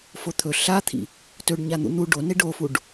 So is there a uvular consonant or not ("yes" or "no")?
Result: no